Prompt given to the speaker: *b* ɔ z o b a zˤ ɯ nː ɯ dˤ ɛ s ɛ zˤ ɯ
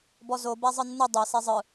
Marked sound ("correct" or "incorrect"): correct